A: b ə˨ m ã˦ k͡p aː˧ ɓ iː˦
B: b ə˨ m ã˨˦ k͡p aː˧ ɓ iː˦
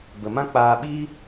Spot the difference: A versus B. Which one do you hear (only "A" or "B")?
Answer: A